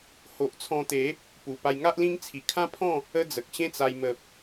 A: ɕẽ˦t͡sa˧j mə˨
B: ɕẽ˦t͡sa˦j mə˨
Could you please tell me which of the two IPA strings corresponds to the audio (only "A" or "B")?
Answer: A